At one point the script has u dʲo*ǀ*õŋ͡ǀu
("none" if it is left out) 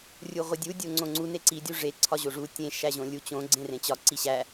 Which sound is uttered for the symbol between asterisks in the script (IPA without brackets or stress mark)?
ŋ͡ǀ